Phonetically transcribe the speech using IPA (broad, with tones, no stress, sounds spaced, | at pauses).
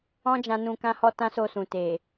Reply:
ɔ̃˦ d͡ʒ ã˧ n ũ˧ k ã˧ h ɔ˧ t ã˦ s o˧ s ũ˨ t e˨